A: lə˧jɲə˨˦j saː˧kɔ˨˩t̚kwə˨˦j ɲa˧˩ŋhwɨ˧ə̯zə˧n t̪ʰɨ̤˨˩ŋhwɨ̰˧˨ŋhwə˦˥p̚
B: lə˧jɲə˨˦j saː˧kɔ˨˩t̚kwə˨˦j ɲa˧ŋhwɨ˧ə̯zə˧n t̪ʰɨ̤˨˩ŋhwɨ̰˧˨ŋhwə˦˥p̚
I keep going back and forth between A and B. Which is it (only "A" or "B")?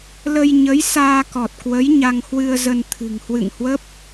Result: B